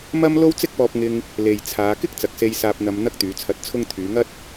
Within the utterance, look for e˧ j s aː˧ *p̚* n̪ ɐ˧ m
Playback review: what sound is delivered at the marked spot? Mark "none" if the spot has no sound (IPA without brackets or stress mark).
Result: p̚